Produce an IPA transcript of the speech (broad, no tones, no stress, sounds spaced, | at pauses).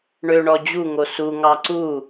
ɳ ø ɳ ɔ d͡ʑ u ŋ o s u ŋ ɑ ǀ u